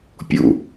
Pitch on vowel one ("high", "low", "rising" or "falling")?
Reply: low